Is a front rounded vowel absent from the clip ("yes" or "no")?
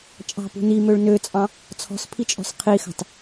no